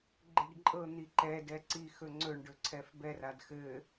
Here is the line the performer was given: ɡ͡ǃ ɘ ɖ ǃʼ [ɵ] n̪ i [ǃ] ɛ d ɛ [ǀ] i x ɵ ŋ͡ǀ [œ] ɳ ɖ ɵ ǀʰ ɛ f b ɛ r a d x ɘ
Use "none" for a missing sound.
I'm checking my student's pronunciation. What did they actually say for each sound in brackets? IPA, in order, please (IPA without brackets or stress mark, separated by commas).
ɤ, ǃ, ǀ, ɵ